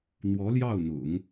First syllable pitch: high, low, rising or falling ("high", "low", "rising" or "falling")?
rising